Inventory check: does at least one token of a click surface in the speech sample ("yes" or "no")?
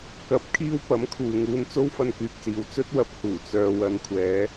no